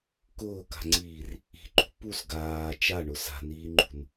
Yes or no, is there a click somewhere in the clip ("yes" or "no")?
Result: yes